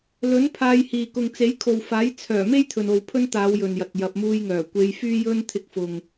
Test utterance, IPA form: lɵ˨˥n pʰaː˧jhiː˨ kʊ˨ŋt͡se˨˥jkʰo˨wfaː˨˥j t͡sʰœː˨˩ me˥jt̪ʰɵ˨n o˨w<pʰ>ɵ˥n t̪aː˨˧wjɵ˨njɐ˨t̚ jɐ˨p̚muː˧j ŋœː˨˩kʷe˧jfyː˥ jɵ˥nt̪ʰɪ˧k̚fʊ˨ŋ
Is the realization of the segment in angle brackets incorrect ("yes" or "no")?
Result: no